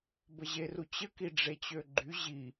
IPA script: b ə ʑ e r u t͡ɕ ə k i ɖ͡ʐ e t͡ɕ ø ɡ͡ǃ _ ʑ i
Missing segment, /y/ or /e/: y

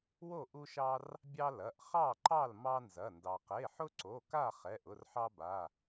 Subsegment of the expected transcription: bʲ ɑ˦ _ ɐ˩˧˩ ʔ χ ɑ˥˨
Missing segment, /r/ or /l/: l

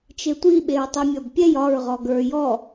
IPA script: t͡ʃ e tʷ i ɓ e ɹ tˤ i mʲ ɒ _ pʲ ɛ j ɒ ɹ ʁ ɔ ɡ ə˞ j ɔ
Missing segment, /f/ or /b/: b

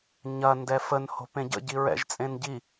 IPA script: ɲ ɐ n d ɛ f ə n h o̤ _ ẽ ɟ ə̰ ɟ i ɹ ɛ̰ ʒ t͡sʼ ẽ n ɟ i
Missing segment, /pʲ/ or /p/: p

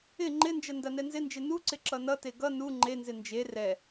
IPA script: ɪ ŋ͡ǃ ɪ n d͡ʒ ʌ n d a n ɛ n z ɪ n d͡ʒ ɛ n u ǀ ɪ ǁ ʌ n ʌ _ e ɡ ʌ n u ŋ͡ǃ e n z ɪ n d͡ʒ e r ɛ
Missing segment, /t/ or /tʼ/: t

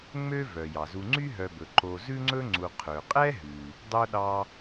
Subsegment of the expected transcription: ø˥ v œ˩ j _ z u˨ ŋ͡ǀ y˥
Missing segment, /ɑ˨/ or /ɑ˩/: ɑ˩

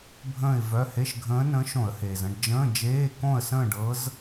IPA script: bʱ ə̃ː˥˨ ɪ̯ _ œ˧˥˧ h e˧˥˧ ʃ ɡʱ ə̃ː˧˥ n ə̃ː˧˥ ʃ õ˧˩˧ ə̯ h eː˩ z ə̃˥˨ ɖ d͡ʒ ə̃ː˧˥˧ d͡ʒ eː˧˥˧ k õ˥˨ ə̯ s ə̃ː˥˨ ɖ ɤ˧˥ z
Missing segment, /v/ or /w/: v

